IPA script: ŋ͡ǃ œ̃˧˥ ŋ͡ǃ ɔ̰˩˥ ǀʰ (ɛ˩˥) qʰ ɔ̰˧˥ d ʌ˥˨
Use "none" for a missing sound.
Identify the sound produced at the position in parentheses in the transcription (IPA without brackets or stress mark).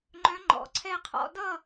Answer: ɛ˥˨